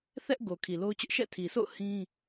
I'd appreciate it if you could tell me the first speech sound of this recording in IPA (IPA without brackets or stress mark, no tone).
θ